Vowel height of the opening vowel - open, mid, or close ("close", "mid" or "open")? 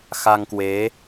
open